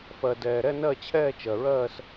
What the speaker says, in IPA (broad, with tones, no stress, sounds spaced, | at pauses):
f ɜ˨ d ɛː˨ ɾ ɛ˥˧ n ɜ˥˧ t͡ɕʰ ɛː˥˧ t͡ʃ ɜ˨ ɹ ɜː˥˧ s